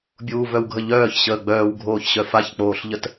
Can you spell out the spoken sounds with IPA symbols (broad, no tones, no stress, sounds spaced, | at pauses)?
bʲ uː v œ w ɡʱ ə ʎ œː ç ɕ əː ɡ͡b œː w ɡʱ oː ç ɕ œ f a ç k͡p oː ɬ ʎ ə t